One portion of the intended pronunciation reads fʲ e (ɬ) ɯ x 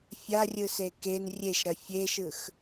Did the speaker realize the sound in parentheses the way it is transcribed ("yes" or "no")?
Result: no